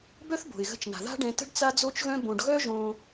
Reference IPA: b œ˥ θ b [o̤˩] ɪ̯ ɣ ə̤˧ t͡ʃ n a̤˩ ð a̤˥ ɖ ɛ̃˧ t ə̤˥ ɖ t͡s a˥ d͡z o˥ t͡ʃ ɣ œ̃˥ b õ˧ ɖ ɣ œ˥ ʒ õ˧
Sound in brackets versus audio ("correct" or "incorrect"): correct